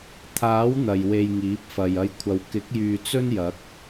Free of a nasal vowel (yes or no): yes